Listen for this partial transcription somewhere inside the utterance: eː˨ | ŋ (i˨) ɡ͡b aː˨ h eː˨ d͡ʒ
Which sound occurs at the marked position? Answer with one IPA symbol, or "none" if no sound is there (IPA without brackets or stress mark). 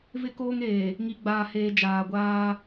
i˨